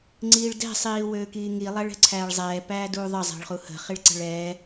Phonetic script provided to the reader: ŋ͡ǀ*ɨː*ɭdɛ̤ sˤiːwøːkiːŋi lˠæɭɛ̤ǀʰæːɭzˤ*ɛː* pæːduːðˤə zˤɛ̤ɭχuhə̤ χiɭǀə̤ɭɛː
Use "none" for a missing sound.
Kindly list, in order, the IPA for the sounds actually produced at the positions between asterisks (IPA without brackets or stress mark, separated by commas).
iː, ɛː